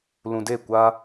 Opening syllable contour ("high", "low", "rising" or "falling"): low